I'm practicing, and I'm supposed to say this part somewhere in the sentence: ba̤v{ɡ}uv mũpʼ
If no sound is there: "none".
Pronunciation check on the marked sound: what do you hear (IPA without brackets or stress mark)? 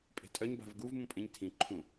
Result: ɡ